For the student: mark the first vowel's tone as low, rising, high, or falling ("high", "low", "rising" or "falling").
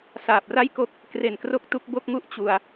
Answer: low